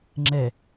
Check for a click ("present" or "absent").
present